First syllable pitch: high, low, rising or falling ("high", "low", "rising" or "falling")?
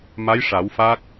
rising